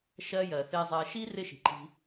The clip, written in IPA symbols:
ʃɜ˦jɜ˩ θɪː˨zˤɜ˨ʃi˦ rɪ˦ ʃi̤˩ǃi̤˨

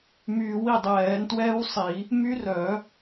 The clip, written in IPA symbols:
myː˨˩˦wi˧˩dˤɛː˨˩˦n twɛː˦˥wsˤi˨˩˦ | my˦˥r œ˨˩˦

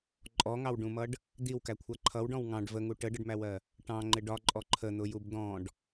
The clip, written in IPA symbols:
ǃʼɔŋɑwɖũmʌɖ | d̪iwkækʷʰæ ǃʰʌwɖɔ̃w ŋɑ̃ɖ vəŋu ʈəɖəɖmæwɜ | ʈɑ̃ŋ͡ǃɪ ɖɒǃʼɔ ǃʰən̪ʊjub d̪ɔ̃ɖ

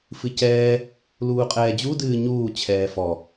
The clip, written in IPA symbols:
fɨcɛː | luːqʼɛːd͡ʑu dɨːɲuː t͡ɕʰɛːfɔ

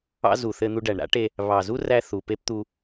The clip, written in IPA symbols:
ɑ̰˦ zu˨ θɘ˧n̪u˧ɖæ˨ɳ ɾa̰˦ʈe˧ | βɑ˨zu˦ræ˧ θu˨pe˦pt̪u˧

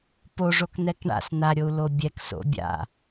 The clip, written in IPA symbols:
poʐok n̪ɛkɳa̰s n̪aɾʲou̯ lobʲɛk so̰bʲa̰

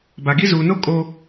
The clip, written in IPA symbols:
ba˨ɡi˦ zuː˨no˦ kʼo˦

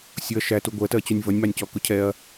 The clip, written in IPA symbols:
sʲʊɐ̯ ʃætu ɡʷɜtɜt͡ɕunʲ vʌnʲmɑnʲcɔ kʊcʰɛɐ̯

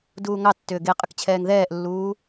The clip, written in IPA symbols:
duːŋɑtːʏː ɡe qʼəkt͡ɕʰɛːŋðɛːʔlːuː

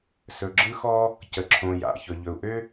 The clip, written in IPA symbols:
sɵ˩ɡ͡ǁɯ˧xɔ˧ | cə˩ǁʰõ˩ja̰˩ çɵ˩ʎɵ˩u̯ʔø˧

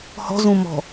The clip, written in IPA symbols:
hɔ̤zũmɔ̤

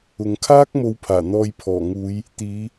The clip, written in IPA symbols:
ʊ˨ŋkʰaː˥k̚ mo˨˧wpʰaː˨˩ n̪ɔː˧jpʰɔː˨˩ŋuː˨˧j | t̪iː˨˧

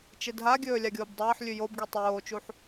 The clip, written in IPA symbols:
t͡ʃedɦaɡʲɵː lʲaɡʲoːbdˤɐːħlʲʉ jobɡi tˤoːt͡ʃuħ

